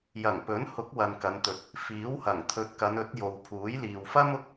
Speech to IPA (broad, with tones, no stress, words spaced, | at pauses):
jɐ˨˩ŋpɵ˨˥nhʊ˨˥k̚ wɐ˨nkɐ˨˧nt̪ɵ˨t̚ | fiː˨˥whɐ˨˩ŋ t̪ʰɵ˨˥t̚kɐ˨˧nɵ˨˥t̚ jo˨wpʰuː˨˥jliː˨w fɐ˥mʊ˧k̚